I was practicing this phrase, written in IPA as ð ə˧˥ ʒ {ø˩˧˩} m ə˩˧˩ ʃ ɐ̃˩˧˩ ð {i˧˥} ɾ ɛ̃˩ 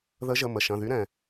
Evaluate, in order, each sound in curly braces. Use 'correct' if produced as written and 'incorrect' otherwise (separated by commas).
incorrect, incorrect